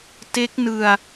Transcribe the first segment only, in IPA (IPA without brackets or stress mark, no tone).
t